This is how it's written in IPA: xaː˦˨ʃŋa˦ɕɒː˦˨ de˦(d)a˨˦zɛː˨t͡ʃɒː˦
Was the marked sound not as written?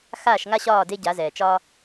yes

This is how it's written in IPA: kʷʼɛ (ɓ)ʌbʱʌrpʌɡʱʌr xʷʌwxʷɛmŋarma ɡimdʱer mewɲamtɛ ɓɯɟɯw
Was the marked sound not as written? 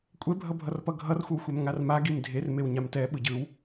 yes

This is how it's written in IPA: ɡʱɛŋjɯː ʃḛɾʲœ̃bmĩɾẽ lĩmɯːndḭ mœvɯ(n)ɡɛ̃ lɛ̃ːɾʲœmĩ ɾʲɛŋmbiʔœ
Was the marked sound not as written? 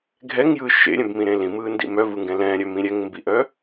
yes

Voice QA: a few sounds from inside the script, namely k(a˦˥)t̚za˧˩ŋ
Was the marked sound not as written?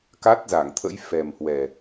no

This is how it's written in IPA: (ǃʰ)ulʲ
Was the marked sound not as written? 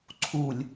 yes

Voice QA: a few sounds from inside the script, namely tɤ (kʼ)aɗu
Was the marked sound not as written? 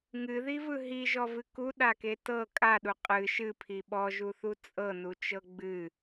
no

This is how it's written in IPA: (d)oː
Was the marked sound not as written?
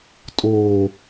yes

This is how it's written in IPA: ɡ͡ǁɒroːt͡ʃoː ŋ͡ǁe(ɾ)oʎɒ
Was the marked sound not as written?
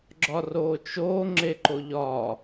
yes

